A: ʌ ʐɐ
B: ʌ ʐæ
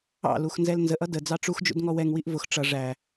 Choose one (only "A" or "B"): B